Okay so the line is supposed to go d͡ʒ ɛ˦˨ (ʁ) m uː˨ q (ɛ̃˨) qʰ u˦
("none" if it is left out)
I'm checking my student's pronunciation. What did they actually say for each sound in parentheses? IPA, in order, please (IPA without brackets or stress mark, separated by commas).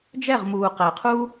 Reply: ʁ, ɛ˨